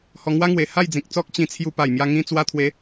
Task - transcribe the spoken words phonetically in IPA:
hɔ˧ŋwa˦ŋwe˨˩ ha˥˧jd͡zĩ˨k̚t͡sɔ˦k̚ t͡ɕĩ˧t͡sʰju˧ pa˨˩jmja˧ŋĩ˧ t͡swa˧t̪ʰwe˨˦

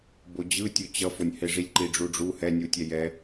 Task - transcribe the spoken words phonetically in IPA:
bod͡ʑɯtʲo t͡ɕʌfonʲhe ʐilʲǃiɖ͡ʐuɖ͡ʐu hɛnʲutʲɛ jɛ

